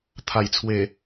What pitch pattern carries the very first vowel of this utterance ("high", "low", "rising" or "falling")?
low